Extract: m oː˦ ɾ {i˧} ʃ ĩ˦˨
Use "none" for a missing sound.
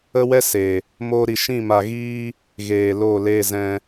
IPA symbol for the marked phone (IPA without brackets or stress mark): i˧